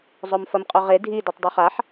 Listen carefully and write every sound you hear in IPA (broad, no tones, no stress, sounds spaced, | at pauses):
zˤ o m f ɐ m qʼ o ʁ e dʱ i d ʉ tˤ dˤ u χ a ħ